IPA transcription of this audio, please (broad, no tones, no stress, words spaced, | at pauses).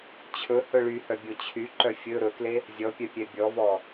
t͡ɕʰɵhɵ ɭyhœbʲo t͡ɕʰyǃœ fʲɵ ɾɵkle | zʲɔpʲœpʲɛ bʲɔvɔ